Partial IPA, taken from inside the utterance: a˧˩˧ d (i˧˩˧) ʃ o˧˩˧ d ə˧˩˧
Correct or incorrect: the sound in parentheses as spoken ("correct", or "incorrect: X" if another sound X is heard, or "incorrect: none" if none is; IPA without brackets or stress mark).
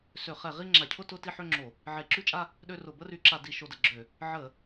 correct